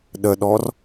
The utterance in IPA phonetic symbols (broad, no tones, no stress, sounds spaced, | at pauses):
ɗ ə ɗ ɔ r